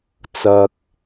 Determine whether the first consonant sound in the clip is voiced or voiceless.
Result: voiceless